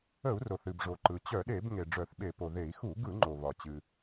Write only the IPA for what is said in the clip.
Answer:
ə˧˩˧ u̯ r o˩ θ ɨ˩ b ʐ o˩ ǃ ɯ˩ t͡ɕ œ˧˩˧ ɗ e˧˩˧ b ŋ e˩ ɖ͡ʐ œ˧˩˧ θ ɓ e˧˩˧ p o˩ ð e˧˩˧ i̯ x u˧˩˧ ɡ ɯ˧˩˧ ŋ͡ǃ o˩ β ɒ˩ t͡ɕ ɨ˩

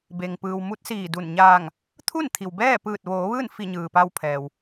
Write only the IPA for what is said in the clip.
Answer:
b e˩ ŋ p ɯː˩ w m u˧˥ t̚ s iː˧˩ d u˧˩ n ɲ aː˧˩ ŋ | t̪ʰ u˥˨ n t̪ʰ i˩ w b ɛː˥˨ p ɯː˧˩ t̚ ʋ oː˩˧ ʋ ɯː˥˨ n f i˧˩ ɲ ɯː˩ p a˧ w pʰ ɛː˩ w

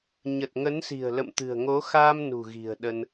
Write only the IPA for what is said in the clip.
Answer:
ɲ ə˨˩ t̚ ŋ ə˨˦ n s i̤˨˩ ə̯ l ə̰˧˨ m t̪ ɨ̤˨˩ ə̯ ŋ o˨˦ x aː˧ m n ṳ˨˩ ɣ i̤˨˩ ə̯ ɗ ə˧ n

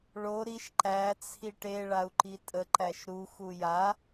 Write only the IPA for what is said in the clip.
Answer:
ɭ o ɾ i ʃ ǃ æ t͡sʰ i ʈ e ɭ a u̯ ǃ i tʼ ə ǃ æ ʃ ɾ u x u j a

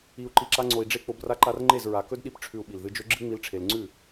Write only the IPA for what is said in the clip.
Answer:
i˨ u̯ ǃ i˨ ǁ a˧ ŋ͡ǀ o˨ i̯ ɖ͡ʐ e˧ k͡p o˧ b r a˦ ǃ a˦ r ŋ͡ǃ e˦˨ z ɹ a˨ k ɵ˦ d ɗ i˧ p ʈ͡ʂʰ ʉ˨ u̯ ɓ i˨ l ð ɨ˧ d͡ʒ ɵ˦ ɡ͡ǁ ɨ˦ ŋ͡m i˧ l ʈ͡ʂʰ e˨ l ŋ͡ǀ ʉ˦˨

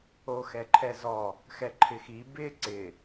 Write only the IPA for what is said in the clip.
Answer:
o x ɛ ǃʰ ɛ z ɔ | x ɛ ǃʰ ɪ x i b ɪ ǀ ɪ

